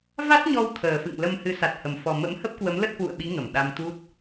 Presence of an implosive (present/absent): present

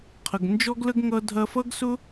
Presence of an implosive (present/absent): absent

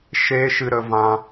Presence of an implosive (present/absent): absent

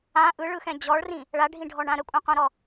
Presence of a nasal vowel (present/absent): present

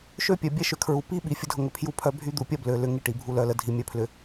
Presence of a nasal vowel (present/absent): absent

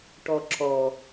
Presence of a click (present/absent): present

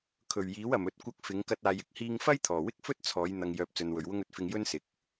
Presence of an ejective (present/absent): absent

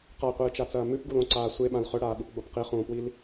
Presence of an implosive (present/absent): present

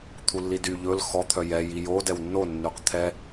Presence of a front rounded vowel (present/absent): present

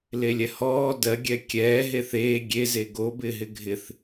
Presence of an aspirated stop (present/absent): absent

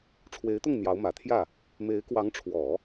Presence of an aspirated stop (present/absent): present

